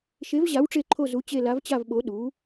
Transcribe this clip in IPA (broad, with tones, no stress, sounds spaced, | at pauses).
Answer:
ʃ e˨˥ v ʑ a˨˥ w ʈ͡ʂ e˦˨ ǃʰ o˦˨ z u˨˥ t͡ɕ e˦˨ l a˨˥ v t͡ɕ a˦˨ v ɓ o˨˥ ɗ u˨˥